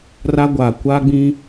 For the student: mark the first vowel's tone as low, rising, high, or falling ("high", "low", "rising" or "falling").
high